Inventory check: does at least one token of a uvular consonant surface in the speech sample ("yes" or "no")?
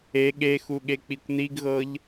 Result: no